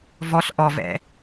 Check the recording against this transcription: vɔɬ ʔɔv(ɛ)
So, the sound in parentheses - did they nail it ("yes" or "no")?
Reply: no